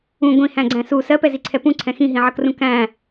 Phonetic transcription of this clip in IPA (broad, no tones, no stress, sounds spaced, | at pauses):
ũ ɡʷ ĩ h æ̃ ɡ͡ǀ æ̃ s u s ɜ p ɛ z i ǀʰ ɛ p ũ ǀʰ ɛ̃ x ĩ ɦ ĩ ʕ ʌ k r ũ k æ̃